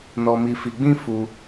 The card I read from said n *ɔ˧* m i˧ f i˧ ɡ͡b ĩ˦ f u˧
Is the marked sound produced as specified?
yes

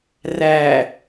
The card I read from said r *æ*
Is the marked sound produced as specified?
no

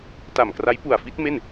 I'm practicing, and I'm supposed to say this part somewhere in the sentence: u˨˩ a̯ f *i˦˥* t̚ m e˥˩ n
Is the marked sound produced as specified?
yes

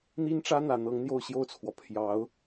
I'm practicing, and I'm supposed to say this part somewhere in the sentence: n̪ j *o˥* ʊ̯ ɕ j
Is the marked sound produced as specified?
no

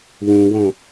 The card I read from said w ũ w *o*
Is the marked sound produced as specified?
no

